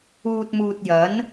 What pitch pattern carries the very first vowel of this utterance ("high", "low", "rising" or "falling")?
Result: low